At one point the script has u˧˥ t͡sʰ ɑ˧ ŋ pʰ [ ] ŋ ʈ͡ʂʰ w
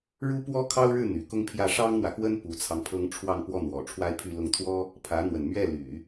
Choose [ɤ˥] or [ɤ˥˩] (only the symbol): ɤ˥